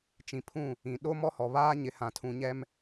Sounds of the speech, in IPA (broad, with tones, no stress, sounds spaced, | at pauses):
t͡ʃ ĩ˨ pʰ ũ˦˨ | ĩ˨ ɗ o˦ m ɔ˦ h ɔ˨ β aː˦ ɲ ɪ˨ h ã˨ tʰ ũ˨ ɲ ɛ˦ m